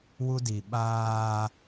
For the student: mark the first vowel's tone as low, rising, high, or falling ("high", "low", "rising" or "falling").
high